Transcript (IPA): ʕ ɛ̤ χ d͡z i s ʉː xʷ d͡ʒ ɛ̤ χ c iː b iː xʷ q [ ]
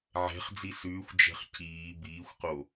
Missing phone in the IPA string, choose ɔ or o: o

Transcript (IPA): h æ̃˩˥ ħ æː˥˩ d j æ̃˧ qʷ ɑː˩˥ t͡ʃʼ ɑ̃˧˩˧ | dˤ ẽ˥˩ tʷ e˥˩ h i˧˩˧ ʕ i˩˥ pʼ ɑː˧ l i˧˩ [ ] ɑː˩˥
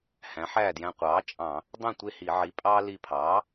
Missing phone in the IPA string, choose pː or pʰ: pʰ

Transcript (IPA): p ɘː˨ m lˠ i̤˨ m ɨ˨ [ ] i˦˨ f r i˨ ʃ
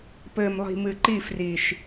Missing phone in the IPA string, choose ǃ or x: ǃ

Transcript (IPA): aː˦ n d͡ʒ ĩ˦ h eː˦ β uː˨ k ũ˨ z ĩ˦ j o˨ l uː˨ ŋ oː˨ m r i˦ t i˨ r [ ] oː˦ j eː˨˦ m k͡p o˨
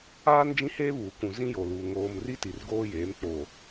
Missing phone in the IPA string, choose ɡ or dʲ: ɡ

